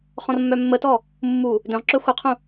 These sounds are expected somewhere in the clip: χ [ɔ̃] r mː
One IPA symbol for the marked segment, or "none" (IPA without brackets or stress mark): ɔ̃